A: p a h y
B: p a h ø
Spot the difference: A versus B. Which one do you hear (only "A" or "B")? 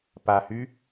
A